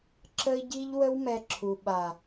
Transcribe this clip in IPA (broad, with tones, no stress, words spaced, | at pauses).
ǁə˧i̯ɟi˧ʎ wə˦wmɛ˧ǁʰu˨ ɓa˨